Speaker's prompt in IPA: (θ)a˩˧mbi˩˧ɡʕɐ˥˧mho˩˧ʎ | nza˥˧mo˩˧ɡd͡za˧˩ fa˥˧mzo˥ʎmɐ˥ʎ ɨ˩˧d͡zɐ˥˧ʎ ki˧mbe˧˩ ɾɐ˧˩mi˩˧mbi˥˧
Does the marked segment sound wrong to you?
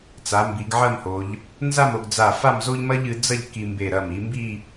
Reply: yes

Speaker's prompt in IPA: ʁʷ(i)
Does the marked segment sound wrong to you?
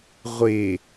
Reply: yes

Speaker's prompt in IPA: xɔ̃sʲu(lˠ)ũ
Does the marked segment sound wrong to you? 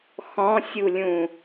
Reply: yes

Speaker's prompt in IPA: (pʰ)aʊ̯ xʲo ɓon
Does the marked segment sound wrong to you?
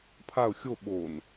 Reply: no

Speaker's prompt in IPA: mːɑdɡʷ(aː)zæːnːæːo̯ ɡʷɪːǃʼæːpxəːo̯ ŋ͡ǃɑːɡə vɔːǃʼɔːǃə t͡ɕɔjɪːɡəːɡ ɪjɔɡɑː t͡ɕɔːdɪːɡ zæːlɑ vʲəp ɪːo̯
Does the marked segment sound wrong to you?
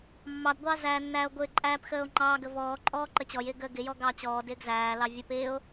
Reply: yes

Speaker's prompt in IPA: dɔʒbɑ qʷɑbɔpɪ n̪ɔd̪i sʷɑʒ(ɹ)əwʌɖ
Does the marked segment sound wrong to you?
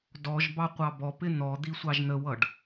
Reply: yes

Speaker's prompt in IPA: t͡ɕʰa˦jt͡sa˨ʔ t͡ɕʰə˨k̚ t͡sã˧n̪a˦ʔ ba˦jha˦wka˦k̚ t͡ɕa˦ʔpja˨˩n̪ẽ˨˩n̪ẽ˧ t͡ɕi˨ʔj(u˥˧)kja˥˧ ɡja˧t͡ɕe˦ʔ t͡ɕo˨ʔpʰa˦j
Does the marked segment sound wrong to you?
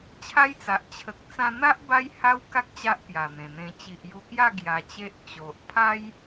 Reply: yes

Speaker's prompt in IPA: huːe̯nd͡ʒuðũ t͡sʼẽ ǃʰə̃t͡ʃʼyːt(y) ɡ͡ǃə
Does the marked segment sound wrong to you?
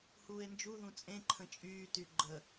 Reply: no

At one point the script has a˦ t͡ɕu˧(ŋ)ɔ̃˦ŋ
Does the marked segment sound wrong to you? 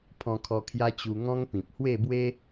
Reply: no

